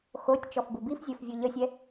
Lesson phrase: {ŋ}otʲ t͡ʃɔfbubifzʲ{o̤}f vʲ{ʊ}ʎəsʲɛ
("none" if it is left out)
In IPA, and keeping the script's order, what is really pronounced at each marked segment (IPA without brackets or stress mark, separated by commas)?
x, o, u